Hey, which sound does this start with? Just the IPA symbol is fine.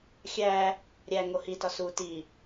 xʲ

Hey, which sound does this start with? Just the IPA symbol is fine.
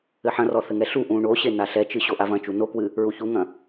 ɘ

